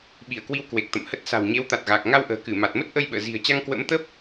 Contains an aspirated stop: no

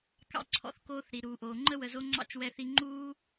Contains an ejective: no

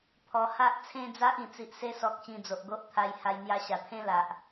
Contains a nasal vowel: yes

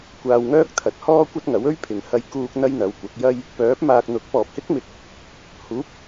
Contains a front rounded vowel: yes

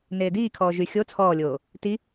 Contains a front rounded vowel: yes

